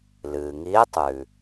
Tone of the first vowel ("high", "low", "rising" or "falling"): low